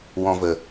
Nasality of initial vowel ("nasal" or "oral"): nasal